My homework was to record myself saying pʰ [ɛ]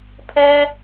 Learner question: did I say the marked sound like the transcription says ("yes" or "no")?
yes